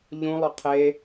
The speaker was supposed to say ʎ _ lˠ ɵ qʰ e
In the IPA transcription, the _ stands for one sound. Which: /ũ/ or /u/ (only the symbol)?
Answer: ũ